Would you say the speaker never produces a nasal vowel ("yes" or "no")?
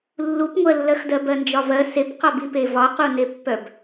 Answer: yes